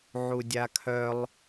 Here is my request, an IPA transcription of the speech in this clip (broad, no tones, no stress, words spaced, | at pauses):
ʕudʲakʰœlˠ